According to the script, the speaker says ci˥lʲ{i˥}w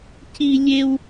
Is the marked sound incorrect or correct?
incorrect